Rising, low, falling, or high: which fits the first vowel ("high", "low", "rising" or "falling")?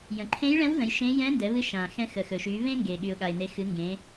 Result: low